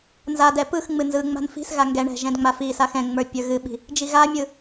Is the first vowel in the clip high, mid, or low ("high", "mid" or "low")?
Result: low